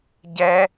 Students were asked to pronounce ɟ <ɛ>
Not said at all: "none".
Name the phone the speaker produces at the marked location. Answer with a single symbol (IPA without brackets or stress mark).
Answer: ɛ